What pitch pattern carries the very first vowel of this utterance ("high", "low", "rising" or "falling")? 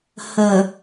low